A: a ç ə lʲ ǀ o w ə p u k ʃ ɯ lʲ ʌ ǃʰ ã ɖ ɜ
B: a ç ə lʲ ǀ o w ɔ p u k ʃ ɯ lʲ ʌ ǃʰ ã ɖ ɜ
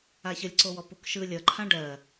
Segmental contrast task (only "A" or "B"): B